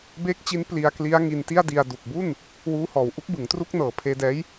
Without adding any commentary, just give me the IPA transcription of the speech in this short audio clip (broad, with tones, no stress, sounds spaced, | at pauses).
b eː˦˥ k̚ t͡ɕ i˦˥ n p l i˧ a̯ k l i˦˥ a̯ ŋ i˧ n t i˥˩ a̯ d i˧ a̯ d u˨˩ k̚ b u˥˩ n | w uː˦˥ h ɔː˨˩ w ʔ u˥˩ k̚ b ɯ˩˦ ŋ t r u˥˩ k̚ n ɤː˨˩ pʰ eː˧ d ɛː˦˥ j